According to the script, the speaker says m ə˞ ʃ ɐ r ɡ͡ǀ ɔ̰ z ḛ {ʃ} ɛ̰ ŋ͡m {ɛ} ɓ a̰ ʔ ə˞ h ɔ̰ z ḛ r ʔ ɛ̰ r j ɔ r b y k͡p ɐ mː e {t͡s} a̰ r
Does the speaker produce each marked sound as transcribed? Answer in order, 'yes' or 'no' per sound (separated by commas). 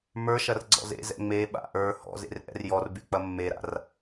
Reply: no, no, no